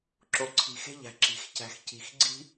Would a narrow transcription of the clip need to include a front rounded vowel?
no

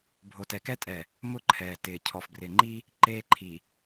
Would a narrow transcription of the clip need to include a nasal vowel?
no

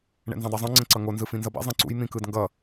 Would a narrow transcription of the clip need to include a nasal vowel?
yes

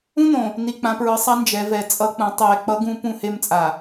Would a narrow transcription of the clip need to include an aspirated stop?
no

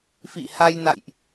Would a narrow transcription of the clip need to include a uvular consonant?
no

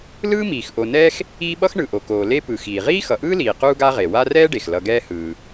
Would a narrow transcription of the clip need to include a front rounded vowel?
no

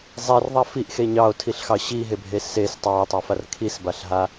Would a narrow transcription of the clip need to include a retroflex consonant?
no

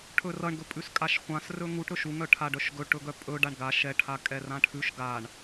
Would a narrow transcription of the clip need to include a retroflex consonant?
yes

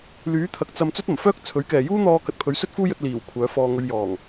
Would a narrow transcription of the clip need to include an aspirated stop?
yes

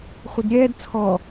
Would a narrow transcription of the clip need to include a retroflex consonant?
no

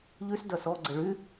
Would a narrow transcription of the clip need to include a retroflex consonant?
yes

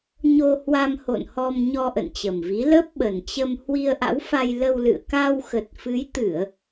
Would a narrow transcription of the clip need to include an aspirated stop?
no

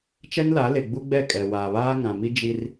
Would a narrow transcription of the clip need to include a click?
no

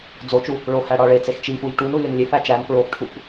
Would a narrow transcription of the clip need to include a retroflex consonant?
yes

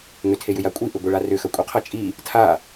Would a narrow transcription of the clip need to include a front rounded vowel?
yes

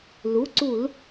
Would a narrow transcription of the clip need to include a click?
yes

